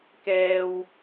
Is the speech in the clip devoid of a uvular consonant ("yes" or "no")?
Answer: yes